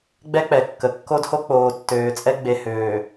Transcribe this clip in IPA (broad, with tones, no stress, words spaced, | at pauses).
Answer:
ɡ͡bɛ˦k͡pɛ˨kːə˨ kːo˦dho˦ k͡poː˨tːøː˨t͡sʼɛ˦ ɡ͡be˨høː˨